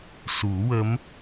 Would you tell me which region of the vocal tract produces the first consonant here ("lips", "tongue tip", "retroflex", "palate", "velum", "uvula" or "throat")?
tongue tip